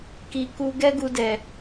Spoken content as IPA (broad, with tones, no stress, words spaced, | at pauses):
ki˨ku˧ ɡɛ˦ɡu˧dɛ˨